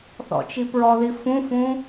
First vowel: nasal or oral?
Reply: oral